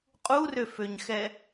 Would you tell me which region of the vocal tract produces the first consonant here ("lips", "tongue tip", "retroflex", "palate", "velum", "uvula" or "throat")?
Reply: uvula